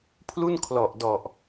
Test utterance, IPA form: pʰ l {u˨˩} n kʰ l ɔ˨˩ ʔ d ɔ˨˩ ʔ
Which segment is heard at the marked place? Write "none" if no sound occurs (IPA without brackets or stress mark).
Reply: u˥˩